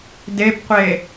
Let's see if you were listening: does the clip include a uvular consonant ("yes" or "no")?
yes